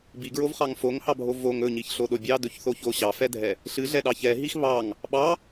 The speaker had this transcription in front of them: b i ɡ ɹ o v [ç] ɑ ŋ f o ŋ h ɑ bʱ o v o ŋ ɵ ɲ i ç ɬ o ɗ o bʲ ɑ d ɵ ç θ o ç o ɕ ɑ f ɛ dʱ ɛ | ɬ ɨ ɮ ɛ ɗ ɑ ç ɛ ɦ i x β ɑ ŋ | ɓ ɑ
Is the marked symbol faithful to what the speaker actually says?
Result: no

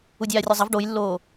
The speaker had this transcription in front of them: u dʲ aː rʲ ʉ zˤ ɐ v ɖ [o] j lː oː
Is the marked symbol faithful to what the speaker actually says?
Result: yes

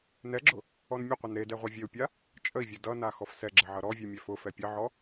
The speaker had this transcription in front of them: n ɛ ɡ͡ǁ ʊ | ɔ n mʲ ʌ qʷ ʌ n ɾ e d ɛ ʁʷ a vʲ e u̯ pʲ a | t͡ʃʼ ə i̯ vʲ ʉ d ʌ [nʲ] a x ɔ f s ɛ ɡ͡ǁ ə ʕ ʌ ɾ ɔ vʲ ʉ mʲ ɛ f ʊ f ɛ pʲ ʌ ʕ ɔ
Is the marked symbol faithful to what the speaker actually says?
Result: no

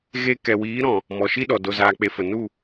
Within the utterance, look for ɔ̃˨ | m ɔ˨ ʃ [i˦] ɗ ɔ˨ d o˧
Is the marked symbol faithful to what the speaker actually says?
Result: yes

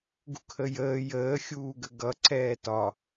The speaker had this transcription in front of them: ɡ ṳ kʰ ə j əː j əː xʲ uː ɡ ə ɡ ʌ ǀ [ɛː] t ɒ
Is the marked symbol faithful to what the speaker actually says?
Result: yes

